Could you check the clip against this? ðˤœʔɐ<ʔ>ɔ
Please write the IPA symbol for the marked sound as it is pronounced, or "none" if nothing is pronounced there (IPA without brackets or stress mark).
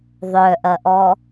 ʔ